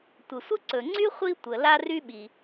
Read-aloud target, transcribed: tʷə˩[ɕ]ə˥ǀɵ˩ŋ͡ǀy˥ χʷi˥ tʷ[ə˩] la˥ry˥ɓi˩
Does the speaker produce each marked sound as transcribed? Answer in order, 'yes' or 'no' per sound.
no, yes

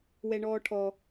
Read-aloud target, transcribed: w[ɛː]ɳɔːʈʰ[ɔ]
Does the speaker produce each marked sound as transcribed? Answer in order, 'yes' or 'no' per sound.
no, yes

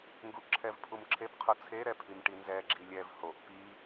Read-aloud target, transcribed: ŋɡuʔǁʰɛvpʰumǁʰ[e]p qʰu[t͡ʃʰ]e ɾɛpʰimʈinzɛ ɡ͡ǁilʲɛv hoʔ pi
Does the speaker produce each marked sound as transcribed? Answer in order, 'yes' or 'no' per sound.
yes, no

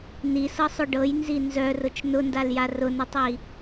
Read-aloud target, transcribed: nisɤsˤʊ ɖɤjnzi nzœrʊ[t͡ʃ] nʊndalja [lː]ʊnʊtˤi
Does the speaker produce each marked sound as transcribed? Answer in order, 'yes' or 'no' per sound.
yes, no

